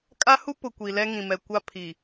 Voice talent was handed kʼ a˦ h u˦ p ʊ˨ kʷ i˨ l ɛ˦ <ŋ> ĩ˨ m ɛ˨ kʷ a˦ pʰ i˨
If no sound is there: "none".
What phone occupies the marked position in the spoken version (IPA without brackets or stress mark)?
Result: ŋ